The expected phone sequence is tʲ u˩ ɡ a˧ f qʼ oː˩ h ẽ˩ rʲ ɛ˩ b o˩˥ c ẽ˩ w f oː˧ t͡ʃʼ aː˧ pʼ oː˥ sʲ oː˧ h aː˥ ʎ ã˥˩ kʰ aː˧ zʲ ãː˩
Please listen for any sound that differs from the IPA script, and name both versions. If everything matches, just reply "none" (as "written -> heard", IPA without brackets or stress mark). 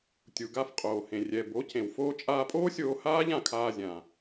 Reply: none